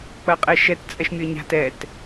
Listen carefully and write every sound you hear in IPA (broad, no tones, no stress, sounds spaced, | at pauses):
k͡p ɐ qʼ ɛ ʃ ɛ t t͡sʼ ɛ ʃ mʲ ə˞ ɲ a̤ t ɛ t